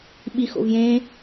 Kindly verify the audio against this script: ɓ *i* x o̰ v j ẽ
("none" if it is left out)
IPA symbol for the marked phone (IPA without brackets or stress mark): i